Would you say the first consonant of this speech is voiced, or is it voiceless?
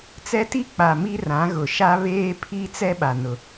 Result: voiceless